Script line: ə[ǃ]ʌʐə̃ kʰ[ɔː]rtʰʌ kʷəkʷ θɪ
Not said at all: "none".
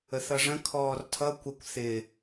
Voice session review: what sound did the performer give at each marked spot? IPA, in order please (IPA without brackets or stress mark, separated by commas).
θ, ɔː